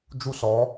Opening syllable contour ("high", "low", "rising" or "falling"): high